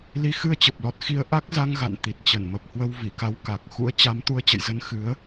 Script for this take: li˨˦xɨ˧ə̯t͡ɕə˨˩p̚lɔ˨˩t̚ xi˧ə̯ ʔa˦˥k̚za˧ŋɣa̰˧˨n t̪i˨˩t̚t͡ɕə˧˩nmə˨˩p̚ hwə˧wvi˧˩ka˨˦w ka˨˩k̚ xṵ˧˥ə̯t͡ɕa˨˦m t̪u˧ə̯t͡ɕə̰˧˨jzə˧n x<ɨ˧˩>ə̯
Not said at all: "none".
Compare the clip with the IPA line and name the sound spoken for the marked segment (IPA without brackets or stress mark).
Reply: ɨ˨˦